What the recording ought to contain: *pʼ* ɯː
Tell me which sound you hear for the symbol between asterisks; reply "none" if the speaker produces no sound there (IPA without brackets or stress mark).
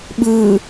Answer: ɓ